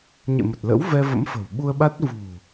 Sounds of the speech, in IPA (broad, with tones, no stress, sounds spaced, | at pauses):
ɲ ḛ˧˨ m ə˨˩ t̚ l ə̰˧˥ w v ɛ˧ v ə̰˧˥ m f ə̤˨˩ w ɓ u˧ ə̯ ɓ a˦˥ t̚ v ṳ˨˩